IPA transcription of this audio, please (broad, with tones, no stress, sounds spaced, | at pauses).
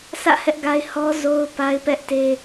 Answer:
sʰ ä̰˦˨ h ɛ˦ ʔ ɡ a˦ ɪ̯ h ɔ˦ z o˦ ʊ̯ p a˦ ɪ̯ p ɛ˦ ʔ t e˦